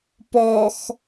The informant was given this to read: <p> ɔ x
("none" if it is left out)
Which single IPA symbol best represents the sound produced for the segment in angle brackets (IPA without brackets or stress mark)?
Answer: p